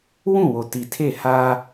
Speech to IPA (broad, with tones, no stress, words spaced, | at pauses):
wũ˦˨wo˨ ti˨tʰe˦˨ha˦